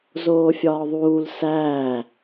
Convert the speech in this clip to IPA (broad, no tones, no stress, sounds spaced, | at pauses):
z oː fʲ ɒː ðˤ uː l s æː